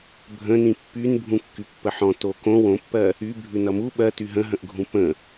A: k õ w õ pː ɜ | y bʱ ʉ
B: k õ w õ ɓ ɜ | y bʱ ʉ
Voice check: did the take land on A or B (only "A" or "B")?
A